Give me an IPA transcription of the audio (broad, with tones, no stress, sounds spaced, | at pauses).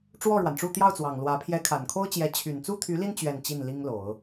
ʈ͡ʂ w ɔ˥˩ ɻ w a˩ n ʈ͡ʂ u˥˧ t̪ j ɑ˥˩ ʊ̯ t͡s w ɑ˨˩ ŋ l w ä˧˥ pʰ j ɛ˧˥ kʰ a˨˩ n kʰ o˥ ʊ̯ t͡ɕ j ɛ˧˥ t͡ɕʰ y˨˩ n t͡s u˥ t̪ʰ y˧˥ l i˥˧ n t͡ɕ ɥ ɛ˥˧ n t͡ɕ i˥˩ n l i˥ ŋ l o˨˩˦ ʊ̯